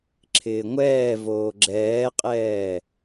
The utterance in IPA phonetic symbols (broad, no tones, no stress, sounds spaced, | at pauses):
ǁʰ ɪː ŋʷ ɛː v oː ɡ͡ǁ ɛː qʼ ɛː